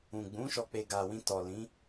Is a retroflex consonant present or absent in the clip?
absent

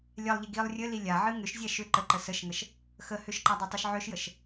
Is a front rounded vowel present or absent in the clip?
present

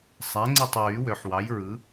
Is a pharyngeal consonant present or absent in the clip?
present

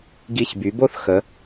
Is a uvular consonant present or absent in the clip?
absent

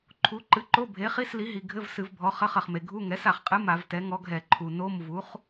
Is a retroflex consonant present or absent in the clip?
absent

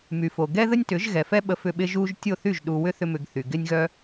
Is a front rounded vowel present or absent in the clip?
present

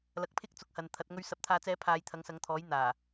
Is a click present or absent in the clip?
absent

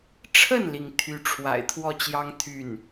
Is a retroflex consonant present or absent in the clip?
present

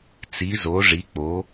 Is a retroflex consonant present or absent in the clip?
present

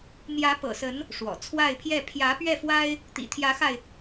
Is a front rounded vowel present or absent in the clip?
absent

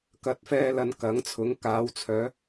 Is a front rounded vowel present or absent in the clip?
present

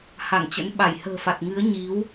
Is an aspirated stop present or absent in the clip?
absent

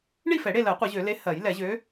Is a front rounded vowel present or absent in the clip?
present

